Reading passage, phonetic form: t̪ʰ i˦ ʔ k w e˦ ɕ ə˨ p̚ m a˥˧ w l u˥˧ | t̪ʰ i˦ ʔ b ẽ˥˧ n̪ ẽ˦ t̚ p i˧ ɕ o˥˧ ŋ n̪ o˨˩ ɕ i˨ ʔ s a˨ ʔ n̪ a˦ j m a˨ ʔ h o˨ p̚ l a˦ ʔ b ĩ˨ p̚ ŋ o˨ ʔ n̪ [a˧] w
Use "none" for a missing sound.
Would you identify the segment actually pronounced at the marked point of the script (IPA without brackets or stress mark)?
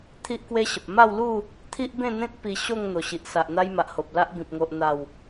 a˨˩